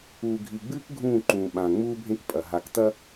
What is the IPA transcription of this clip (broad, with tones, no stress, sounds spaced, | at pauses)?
uː˨ ɡʱ i˨ ɡ͡b ɨː˦ k ɡʱ ũː˦˨ ǃ ũː˨ ɓ ã˨ ŋ͡m uː˦ bʱ ẽ˦ k pʼ ɐ˨ ɦ a˨ k t ɐ˦